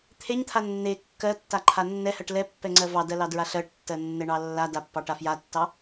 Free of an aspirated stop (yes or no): no